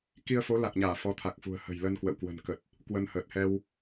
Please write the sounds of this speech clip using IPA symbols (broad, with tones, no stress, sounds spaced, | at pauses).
k i˧ ə̯ f o˨˦ l a˨˩ k̚ ɲ aː˧˩ f ɔ˨˦ t̪ʰ a˨˩ k̚ f ṳ˨˩ ə̯ h ə̤˨˩ j l ə˧ n k w ə̰˧˨ w k w ə̤˨˩ n k ə˨˩ t̚ | k w ə˧ n h əː˨˩ t̚ h ɛ˧ w